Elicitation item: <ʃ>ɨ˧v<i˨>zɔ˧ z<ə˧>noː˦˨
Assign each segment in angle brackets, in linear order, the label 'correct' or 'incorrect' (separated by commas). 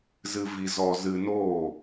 incorrect, incorrect, incorrect